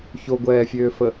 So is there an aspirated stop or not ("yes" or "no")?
no